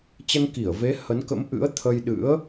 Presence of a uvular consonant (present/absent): absent